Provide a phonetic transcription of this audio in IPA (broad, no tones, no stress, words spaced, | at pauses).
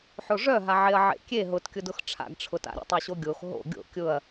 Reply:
ħoʐœɦaʕeɐ̯ ʕḛkʲe ɦʊtkʲʊdʊx ʈ͡ʂʰa̰ɡʈ͡ʂʰʊta̰ɾʲo̰ tˤoɕoɡʲox ɦo̰ ɡʲo̰ kʲʊɐ̯